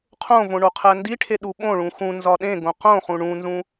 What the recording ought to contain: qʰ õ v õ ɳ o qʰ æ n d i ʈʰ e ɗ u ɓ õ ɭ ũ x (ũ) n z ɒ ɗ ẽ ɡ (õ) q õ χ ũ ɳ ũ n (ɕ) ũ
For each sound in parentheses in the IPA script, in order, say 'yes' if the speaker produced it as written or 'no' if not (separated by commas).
yes, yes, no